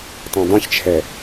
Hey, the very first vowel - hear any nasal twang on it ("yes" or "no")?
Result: yes